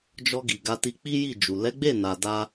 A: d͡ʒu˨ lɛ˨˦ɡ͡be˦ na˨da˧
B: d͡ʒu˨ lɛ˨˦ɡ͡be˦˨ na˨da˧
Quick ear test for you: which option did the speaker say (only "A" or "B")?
B